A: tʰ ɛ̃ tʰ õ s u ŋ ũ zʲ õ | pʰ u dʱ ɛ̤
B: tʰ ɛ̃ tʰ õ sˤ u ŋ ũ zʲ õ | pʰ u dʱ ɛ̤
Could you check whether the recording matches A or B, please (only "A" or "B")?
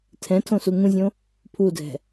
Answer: A